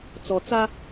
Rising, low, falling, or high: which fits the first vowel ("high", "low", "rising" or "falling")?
low